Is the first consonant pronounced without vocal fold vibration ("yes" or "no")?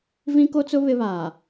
no